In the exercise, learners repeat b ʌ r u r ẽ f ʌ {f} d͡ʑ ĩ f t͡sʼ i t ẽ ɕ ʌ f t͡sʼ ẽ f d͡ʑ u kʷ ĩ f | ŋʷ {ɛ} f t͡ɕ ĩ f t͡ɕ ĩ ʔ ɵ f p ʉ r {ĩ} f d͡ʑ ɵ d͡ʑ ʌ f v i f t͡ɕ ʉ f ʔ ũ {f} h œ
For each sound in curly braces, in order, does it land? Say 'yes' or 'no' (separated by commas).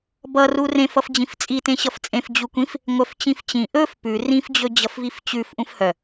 yes, no, yes, yes